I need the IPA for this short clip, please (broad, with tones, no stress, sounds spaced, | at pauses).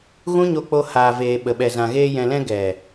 ɣ ũ˦ ɲ o˧ k͡p o˧ h aː˨ v eː˨ ɓ ə˨ ɓ ɛ˨ z ã˨ ɣ eː˧ j ɛ̃˨ l ɛ̃˧ ɡ ɛ˨